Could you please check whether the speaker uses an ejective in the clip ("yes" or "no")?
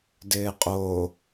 yes